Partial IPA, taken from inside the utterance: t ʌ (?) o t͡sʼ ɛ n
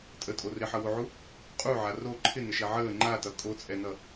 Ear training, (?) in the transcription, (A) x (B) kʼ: B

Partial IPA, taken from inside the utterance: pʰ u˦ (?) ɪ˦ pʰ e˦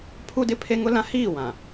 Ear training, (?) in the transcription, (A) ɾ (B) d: B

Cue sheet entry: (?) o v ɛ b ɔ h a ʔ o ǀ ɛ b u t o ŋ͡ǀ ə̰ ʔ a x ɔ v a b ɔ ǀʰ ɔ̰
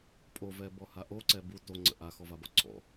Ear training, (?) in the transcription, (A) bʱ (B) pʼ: B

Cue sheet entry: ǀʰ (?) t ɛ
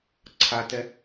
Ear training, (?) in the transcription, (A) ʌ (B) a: B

